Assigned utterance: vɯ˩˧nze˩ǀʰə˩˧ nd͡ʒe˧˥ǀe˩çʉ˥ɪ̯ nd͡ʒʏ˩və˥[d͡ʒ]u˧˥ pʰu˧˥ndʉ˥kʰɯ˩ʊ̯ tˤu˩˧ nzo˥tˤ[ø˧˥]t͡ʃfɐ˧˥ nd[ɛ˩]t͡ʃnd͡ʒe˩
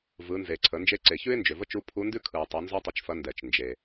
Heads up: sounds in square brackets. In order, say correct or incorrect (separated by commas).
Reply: incorrect, incorrect, correct